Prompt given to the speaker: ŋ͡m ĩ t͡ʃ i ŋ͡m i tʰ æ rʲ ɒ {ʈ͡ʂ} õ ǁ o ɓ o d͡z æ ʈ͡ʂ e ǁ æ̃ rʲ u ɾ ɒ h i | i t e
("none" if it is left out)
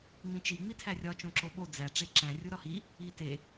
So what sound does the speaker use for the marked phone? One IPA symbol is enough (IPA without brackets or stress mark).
t͡ʃ